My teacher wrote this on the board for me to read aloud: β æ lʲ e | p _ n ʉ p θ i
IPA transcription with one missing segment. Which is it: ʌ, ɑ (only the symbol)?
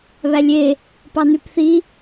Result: ɑ